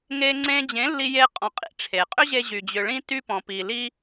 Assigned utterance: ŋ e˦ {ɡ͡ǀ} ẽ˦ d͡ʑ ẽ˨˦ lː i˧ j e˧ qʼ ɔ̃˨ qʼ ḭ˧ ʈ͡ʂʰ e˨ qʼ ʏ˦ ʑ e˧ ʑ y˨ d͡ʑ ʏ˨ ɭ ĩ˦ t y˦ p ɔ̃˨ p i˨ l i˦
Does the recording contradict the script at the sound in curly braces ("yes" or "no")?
yes